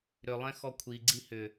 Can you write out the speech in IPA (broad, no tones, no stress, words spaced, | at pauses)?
ɾʏlˠɛ̃ xɔkʷʰi ɡ͡ǀihʏ